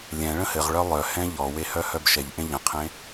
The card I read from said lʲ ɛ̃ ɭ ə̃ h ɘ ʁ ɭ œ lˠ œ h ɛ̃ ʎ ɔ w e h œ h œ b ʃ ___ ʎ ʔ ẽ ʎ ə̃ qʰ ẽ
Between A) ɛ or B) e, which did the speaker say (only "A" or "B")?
A